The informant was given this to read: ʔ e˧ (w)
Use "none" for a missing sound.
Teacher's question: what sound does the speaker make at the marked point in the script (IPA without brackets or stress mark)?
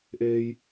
j